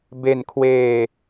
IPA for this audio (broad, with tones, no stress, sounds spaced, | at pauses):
b e˧ n kʰ w eː˧